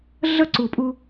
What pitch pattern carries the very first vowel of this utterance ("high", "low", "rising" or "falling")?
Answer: high